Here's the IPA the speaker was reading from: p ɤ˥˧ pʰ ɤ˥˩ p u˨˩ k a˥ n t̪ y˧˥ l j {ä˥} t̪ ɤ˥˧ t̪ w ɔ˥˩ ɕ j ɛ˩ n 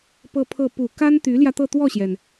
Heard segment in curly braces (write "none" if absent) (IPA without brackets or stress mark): ä˧